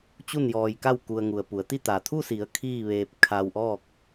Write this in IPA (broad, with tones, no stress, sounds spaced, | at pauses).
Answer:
t͡ɕ u˥˨ n j ɔː˧ j k a˥˨ w k u˧ ə̯ ŋ u˩ ə̯ p u˩˧ ə̯ t̪ i˥˨ t̪ a˩ t̪ʰ u˥˨ s i˩˧ ə̯ kʰ iː˥˨ ʋ eː˧ p̚ kʰ a˧ w ʔ ɔː˥˨ k̚